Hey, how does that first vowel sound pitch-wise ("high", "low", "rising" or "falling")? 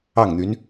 falling